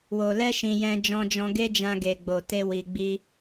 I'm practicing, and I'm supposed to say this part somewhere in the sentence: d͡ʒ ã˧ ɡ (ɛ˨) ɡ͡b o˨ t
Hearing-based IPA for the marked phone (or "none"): e˨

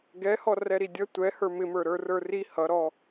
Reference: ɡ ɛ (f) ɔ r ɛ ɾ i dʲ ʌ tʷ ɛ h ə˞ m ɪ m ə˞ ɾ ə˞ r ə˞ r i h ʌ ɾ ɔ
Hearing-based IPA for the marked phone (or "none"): h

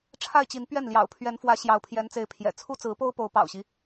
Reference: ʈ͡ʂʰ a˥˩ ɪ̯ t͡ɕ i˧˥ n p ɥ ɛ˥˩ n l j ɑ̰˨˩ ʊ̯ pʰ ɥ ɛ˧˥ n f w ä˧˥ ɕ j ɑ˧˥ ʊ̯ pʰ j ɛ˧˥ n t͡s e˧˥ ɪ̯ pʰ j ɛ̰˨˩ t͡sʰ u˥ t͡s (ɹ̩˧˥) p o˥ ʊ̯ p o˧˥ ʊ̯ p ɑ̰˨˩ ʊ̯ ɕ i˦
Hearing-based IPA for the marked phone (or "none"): ɹ̩˧˥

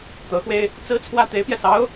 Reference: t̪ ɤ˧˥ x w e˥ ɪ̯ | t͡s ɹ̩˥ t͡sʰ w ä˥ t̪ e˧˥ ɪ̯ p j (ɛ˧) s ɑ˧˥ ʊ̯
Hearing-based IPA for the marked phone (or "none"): ɛ˧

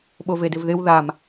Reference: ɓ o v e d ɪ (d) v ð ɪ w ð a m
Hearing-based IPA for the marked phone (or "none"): none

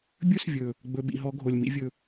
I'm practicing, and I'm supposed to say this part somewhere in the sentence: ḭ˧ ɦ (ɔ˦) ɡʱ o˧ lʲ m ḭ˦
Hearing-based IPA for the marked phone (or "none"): ɔ˦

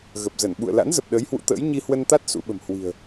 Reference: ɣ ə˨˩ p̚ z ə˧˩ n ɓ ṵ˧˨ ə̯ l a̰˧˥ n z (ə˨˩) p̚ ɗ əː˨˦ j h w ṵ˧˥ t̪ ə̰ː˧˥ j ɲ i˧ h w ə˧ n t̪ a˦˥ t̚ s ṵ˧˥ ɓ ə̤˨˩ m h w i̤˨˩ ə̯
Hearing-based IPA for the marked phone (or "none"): ə˨˩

